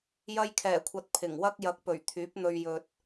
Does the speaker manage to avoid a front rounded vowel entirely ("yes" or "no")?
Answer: no